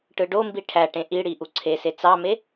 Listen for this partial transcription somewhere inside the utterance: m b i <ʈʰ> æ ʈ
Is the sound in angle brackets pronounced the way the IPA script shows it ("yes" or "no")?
yes